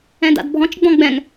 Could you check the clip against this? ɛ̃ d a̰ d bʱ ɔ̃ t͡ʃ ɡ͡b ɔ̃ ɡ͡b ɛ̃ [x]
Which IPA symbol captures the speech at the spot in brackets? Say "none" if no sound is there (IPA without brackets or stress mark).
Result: ŋ